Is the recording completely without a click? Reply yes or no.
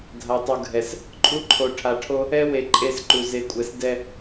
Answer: no